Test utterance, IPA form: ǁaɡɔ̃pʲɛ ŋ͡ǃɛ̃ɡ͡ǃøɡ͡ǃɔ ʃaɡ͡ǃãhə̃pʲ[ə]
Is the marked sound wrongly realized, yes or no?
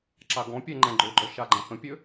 yes